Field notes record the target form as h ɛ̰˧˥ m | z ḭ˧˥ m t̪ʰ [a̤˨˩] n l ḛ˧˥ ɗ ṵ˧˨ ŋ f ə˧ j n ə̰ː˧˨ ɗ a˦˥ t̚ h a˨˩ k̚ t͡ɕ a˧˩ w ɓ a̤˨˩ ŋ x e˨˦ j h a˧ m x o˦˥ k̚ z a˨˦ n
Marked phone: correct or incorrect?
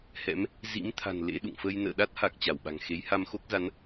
correct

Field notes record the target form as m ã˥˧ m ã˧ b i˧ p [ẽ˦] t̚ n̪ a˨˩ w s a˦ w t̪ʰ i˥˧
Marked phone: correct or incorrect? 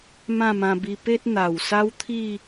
incorrect: e˦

